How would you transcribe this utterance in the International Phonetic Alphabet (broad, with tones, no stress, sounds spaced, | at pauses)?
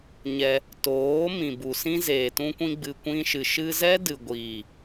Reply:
ɲ ɛ˧ | t oː˨˦ m ĩ˨ b u˨ s ĩ˦ z eː˨ t ũ˧ kʷ ĩ˧ ɡ͡b ɨ˨ kʷ ĩ˧ ʃ ɨ˨ ʃ ɨ˧ z ɛ˦ d ɨ˨ ɡʷ iː˨